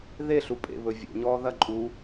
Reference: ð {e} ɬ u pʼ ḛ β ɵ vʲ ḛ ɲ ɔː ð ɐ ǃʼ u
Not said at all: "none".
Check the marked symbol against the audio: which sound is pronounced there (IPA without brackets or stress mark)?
e